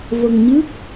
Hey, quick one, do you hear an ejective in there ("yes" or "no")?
no